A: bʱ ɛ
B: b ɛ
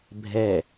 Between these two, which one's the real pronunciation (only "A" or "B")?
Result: A